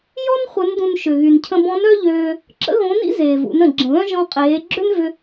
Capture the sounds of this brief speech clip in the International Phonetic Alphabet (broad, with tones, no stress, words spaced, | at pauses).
jɔ˥n χʷə˧˥ndũ˧n ʃʏ˩ ɣy˩ncʰə̃˧bɔ̃˧˥n œ˥ʎøː˧ | ǁə̰˥ɣõ˧˥nḭ˥ zeː˩vṵ˩˧nə̃˩ ɡ͡ǁə̃˩βœ̃˥ ʒɔ̃˧qʼeː˩˧ ɡ͡ǁø˥nvʏ˧